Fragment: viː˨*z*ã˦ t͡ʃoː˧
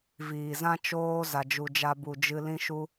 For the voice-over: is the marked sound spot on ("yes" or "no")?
yes